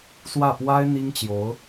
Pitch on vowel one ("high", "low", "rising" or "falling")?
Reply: falling